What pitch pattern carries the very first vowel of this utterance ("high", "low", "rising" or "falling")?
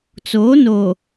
rising